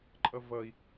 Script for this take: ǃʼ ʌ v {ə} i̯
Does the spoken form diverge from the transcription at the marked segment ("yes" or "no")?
yes